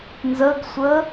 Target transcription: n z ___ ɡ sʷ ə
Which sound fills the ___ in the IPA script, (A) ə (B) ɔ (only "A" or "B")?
A